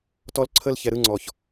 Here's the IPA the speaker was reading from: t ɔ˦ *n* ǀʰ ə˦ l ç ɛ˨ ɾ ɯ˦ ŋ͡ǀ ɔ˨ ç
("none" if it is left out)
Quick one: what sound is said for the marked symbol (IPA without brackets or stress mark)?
l